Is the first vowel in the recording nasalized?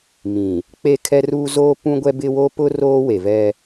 yes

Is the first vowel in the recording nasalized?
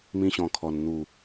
yes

